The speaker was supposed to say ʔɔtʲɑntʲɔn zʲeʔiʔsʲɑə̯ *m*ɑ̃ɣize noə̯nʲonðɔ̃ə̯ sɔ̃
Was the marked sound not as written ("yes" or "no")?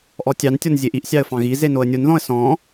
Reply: yes